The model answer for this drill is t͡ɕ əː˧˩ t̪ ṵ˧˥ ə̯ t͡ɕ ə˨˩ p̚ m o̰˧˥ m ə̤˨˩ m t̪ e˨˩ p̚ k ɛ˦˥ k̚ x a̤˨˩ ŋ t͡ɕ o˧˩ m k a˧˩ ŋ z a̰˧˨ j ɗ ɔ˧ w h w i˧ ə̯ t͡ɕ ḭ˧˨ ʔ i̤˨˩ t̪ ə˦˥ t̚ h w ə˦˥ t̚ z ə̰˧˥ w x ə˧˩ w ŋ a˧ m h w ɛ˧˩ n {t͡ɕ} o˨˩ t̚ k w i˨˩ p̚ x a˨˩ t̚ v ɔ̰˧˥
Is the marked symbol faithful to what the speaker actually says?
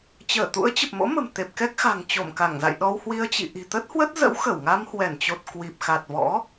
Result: yes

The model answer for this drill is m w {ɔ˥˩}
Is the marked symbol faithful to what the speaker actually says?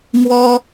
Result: no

